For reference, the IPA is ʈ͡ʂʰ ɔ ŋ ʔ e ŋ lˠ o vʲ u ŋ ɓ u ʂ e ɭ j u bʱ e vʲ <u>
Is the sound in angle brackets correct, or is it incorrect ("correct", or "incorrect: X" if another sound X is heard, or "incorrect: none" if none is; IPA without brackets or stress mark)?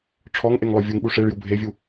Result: correct